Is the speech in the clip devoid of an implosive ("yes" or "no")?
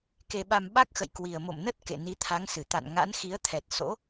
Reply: no